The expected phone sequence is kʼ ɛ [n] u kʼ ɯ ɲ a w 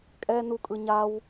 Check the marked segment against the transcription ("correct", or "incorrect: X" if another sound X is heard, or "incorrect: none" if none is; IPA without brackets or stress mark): correct